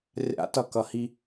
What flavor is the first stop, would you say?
plain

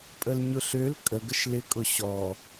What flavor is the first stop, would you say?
ejective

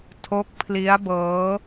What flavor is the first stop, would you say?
aspirated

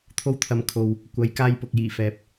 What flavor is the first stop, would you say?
aspirated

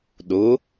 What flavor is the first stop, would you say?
implosive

